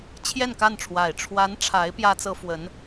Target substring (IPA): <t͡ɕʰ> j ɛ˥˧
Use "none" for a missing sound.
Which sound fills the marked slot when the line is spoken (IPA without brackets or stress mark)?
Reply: t͡ɕʰ